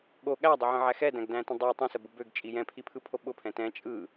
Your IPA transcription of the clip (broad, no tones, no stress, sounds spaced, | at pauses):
ɠ o ɠ æ dˤ ʊ ʕ ə̃ ʕ æ x ɛ d æ̃ ɡ d æ̃ t ə̃ dˤ o tˤ ĩ s ə b ʊ b ø ɡ t͡ʃʼ i j ɛ̃ pʰ i pʰ ɯ pʰ o ɓ ʊ pʰ ɛ̃ t ɛ̃ t͡ʃʼ ɯ